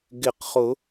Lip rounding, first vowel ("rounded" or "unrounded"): unrounded